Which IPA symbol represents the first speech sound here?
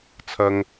t͡sʰ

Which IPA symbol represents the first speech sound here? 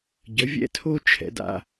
ɟ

